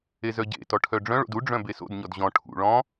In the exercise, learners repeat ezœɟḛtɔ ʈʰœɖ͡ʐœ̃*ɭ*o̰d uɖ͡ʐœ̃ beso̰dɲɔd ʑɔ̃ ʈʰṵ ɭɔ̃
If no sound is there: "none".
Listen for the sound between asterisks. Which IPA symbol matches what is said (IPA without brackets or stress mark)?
ɭ